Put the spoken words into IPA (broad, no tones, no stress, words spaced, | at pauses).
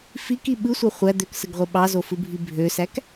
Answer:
fiki ɓɯsʷɑ χʷæ d̪øksɯɡʁʷe ɓɑzofɯbʱi bʱøsæk